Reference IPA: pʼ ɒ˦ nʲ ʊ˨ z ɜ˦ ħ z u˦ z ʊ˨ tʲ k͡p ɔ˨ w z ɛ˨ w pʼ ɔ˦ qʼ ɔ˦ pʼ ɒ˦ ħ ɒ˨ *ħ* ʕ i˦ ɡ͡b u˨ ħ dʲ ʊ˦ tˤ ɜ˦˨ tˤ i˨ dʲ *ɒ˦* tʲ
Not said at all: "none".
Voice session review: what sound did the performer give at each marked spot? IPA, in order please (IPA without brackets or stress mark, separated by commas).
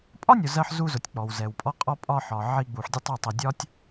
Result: none, ɒ˦